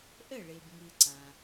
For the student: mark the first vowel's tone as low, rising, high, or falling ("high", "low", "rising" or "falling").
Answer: falling